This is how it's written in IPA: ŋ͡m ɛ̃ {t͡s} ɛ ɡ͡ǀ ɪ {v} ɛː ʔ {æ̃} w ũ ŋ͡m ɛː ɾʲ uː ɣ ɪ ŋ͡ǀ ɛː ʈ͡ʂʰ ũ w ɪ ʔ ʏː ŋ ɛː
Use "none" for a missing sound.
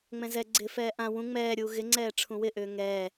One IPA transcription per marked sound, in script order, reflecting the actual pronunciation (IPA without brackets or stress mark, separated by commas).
z, f, ã